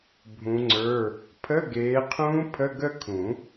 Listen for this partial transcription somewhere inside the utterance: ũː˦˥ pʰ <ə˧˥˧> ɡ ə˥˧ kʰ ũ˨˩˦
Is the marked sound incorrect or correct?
correct